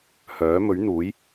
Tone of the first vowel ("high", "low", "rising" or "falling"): rising